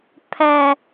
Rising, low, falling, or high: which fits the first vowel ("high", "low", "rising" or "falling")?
low